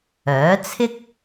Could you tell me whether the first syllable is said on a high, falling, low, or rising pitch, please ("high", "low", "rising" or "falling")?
rising